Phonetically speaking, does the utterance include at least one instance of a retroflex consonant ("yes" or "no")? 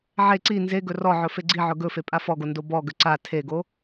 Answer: no